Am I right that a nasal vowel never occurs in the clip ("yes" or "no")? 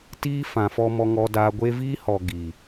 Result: no